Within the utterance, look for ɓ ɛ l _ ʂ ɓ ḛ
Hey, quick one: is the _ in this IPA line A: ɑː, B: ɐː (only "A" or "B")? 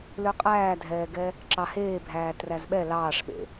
A